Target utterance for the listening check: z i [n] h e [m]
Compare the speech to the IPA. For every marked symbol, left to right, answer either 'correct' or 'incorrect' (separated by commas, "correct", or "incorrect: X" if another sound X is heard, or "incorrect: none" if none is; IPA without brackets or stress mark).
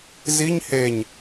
incorrect: ɲ, incorrect: ɲ